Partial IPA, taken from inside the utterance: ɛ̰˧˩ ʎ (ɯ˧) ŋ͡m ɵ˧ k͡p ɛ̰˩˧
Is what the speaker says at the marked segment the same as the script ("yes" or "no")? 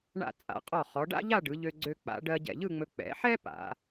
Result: no